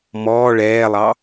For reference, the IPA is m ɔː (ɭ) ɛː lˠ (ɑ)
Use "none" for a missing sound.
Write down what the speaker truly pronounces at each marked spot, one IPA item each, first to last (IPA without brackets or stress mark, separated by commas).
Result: ɭ, ɑ